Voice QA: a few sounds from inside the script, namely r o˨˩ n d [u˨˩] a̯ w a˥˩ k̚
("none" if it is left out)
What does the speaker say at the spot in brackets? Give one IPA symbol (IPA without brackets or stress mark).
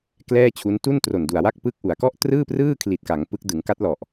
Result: u˨˩